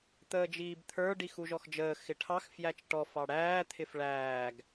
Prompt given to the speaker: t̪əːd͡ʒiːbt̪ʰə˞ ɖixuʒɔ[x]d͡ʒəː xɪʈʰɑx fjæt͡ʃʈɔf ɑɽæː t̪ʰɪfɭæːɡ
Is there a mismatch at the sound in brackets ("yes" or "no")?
no